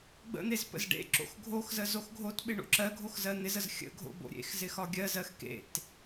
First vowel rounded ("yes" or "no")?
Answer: no